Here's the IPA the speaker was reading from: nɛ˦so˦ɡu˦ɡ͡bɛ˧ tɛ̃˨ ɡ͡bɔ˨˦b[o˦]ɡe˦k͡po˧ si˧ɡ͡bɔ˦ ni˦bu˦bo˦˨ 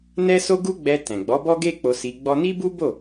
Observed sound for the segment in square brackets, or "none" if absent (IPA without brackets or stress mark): ɔ˦